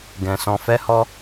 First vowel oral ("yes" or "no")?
no